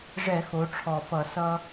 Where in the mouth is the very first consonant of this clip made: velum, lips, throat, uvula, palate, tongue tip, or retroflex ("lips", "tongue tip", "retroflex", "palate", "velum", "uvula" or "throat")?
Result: retroflex